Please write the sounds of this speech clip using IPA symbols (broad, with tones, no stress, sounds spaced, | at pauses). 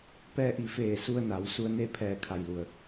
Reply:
p ɛː˧ ʔ i˩˧ f eː˧˩ s u˧ ə̯ n a˩˧ w s u˧ ə̯ n e˥˨ pʰ ɛː˧˩ kʰ a˩ j l u˩ ə̯